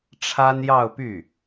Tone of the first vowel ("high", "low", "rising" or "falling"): high